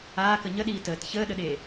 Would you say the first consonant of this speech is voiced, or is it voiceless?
voiceless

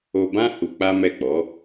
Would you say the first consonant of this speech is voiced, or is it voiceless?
voiced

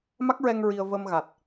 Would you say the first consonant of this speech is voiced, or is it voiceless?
voiced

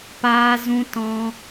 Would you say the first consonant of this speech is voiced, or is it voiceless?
voiceless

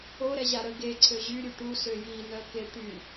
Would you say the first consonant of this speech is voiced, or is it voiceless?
voiced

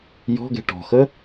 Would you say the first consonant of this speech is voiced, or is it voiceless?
voiced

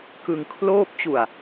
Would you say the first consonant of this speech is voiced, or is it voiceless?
voiceless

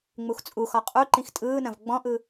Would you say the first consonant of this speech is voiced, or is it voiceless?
voiced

